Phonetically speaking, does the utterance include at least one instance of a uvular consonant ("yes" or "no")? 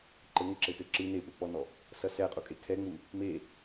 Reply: yes